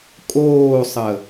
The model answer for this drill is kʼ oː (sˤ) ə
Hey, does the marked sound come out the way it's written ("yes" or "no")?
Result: yes